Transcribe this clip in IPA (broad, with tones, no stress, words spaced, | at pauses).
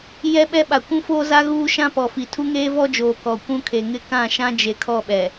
jɛ˦ɓɛ˦ɓa˨ kʷũ˦foː˦za˦ ɣuː˦ʃã˦pɔ˨fi˨ tʰu˦ŋeː˦vɔ˦d͡ʒoː˨ kɔ˨ kʷũ˦kʰe˨ŋɪ˦ kã˦˨ʃã˦d͡ʒe˨ kʰɔ˦˨ɓɛ˨